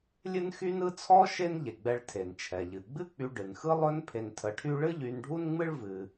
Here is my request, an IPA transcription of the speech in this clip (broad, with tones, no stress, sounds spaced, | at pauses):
lʲ ɨ˥ n x y˥ n ɯ˥ t͡sʰ ɔ˥ ʃ e˥ n ʎ e˩ ɡ͡b ɛ˧ ɭ tʰ e˩ n t͡ʃʰ ɛ˩ ʎ ɨ˩ ɡ͡b ɨ˥ k͡p y˧ ɖ ɨ˩ n x ɯ˥ lˠ ɵ˥ n pʰ e˧ n tʰ ə˧ ʈʰ y˥ ɭ ɨ˥ ʎ y˧ n ɖʱ u˥ n ŋ͡m ɨ˥ ɭ v ɨ˧